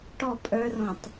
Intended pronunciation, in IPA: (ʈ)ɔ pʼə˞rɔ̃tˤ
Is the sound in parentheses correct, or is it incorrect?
correct